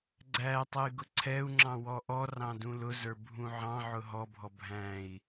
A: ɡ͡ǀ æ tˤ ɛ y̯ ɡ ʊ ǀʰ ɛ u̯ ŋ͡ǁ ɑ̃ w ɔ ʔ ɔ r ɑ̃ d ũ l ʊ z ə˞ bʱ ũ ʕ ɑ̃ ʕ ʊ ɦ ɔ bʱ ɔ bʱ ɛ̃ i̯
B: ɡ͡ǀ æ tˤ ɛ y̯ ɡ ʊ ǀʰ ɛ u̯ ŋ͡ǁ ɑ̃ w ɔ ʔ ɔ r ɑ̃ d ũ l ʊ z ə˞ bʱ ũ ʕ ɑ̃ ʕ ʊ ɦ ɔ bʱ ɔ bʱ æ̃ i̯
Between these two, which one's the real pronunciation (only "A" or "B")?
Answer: B